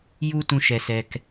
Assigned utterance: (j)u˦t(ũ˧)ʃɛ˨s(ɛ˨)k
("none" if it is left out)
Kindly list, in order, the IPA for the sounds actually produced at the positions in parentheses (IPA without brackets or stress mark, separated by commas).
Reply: j, ũ˧, ɛ˨